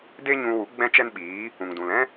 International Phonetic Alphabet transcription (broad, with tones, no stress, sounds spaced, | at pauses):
d e˦ ɲ ũ˧ w u˨˦ ɡ͡b ɛ̃˦ t͡ʃ ɛ˦ n ɓ iː˨˦ | ũ˨ ŋ d ũ˨ l ɛ̃˦